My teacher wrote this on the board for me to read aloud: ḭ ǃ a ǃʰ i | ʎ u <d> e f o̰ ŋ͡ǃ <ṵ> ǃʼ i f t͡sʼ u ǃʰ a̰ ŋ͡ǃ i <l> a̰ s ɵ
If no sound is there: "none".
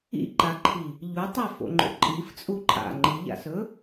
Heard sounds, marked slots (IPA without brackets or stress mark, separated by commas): tˤ, o̰, ʎ